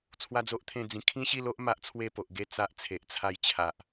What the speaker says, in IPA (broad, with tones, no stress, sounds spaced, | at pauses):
t͡sʰ w a˦ d͡z o˦ ʔ t̪ʰ ẽ˥˧ d͡z ĩ˧ kʰ ĩ˦ ɕ i˥˧ l o˦ ʔ m a˦ ʔ t͡sʰ w e˥˧ p o˨ ʔ ɡ e˥˧ t͡s a˦ ʔ t͡sʰ e˨ ʔ t͡sʰ a˦ j t͡ɕʰ a˨ ʔ